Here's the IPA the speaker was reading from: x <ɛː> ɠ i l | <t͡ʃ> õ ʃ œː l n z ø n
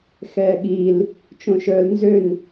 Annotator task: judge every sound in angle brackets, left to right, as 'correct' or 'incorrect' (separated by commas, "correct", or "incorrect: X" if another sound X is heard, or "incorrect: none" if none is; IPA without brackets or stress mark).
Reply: correct, correct